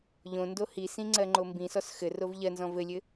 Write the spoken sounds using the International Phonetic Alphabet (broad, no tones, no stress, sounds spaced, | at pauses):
ʎ õ n d o h i s ĩ ŋ͡ǀ ɜ ŋ͡ǃ o m b ĩ s ɔ s x ɘ r o v ʎ ɜ n z ɔ̃ v ɘ lʲ ɘ